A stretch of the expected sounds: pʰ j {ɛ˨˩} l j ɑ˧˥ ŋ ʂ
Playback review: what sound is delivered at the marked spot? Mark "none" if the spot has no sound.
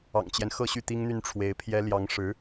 ɛ˥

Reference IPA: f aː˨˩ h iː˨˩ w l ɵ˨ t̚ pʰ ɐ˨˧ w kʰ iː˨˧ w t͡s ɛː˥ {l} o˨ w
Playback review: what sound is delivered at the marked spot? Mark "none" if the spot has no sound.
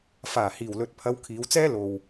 l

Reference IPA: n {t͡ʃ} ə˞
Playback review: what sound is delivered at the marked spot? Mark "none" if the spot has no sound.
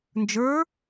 d͡ʒ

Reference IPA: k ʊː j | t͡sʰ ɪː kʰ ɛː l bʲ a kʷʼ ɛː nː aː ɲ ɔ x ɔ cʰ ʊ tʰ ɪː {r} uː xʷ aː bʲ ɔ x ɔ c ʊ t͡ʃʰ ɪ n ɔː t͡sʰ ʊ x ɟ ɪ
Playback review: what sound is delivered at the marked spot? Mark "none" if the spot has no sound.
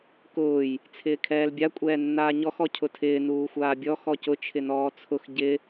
n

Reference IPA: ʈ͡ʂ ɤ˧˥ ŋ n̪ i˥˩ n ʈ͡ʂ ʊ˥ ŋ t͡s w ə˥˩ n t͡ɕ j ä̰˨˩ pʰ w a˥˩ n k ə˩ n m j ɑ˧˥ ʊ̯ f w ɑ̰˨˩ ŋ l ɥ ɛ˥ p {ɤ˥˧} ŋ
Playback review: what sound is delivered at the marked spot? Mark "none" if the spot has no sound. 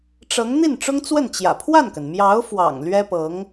ɤ˧˥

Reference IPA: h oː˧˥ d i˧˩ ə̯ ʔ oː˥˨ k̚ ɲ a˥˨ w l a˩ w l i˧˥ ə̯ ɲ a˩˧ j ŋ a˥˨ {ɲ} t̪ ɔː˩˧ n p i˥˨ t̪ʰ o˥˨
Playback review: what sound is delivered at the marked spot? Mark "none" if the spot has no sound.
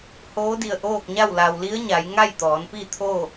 j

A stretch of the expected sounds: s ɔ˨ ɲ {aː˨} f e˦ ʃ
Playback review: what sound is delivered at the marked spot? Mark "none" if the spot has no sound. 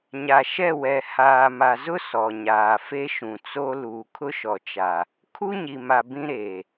aː˨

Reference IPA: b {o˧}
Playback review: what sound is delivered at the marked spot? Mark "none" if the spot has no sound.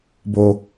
o˧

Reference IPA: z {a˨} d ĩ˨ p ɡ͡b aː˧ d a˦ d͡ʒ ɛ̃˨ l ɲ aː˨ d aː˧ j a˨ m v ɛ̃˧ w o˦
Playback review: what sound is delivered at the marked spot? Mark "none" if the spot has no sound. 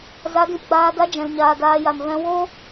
a˨˦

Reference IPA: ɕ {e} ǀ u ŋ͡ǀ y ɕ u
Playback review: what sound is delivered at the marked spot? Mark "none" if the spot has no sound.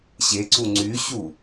e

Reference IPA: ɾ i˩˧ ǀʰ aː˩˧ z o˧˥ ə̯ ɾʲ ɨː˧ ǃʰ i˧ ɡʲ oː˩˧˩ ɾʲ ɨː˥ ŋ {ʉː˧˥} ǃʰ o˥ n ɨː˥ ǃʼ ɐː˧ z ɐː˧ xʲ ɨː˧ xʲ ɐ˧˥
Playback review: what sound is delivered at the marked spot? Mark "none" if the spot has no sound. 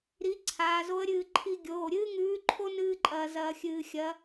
ʉː˧˥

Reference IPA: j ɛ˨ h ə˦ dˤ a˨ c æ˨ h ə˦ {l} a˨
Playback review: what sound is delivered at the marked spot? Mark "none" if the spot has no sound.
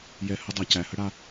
ɽ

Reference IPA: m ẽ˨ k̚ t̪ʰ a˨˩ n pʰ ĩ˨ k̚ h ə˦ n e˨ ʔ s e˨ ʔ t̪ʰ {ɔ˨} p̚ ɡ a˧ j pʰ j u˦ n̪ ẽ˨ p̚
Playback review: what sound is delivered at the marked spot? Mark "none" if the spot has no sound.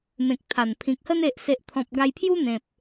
ɔ̃˨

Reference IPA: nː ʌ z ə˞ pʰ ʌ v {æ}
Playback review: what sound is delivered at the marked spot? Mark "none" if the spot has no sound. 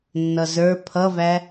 æ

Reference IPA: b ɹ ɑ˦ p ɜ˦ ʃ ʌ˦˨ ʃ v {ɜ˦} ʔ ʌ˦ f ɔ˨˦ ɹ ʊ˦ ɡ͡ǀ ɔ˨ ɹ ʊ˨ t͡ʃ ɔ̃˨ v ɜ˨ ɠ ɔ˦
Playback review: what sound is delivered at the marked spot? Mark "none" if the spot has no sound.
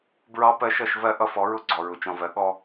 ɜ˦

